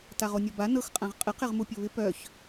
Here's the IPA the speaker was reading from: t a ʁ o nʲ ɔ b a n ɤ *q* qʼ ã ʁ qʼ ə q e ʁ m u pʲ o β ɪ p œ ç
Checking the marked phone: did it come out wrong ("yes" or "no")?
yes